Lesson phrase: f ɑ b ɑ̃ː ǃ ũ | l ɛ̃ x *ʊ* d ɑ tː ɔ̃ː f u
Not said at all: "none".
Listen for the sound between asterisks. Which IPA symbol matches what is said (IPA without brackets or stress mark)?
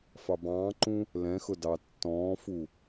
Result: ʊ